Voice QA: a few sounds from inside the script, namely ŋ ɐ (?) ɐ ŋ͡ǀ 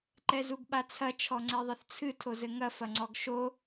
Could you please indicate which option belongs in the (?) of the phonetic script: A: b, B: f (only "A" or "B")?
B